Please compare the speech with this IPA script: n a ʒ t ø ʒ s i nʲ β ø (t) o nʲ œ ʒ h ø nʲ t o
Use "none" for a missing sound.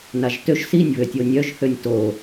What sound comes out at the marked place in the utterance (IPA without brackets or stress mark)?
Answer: tʲ